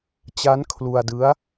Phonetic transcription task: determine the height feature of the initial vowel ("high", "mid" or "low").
low